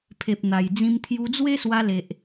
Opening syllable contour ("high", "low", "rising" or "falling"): low